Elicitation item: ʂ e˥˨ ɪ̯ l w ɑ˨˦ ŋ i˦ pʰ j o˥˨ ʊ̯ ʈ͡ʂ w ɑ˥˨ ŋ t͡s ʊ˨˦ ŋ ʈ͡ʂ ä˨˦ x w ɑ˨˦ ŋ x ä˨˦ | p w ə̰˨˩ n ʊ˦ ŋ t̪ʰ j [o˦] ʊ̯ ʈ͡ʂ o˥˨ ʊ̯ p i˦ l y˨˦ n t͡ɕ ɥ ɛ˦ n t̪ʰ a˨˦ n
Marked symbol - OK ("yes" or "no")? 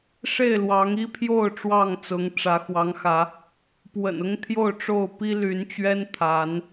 no